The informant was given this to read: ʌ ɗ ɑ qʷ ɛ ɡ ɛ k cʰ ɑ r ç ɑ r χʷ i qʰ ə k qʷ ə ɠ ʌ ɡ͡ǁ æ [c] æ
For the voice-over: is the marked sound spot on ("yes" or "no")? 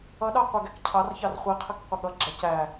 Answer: yes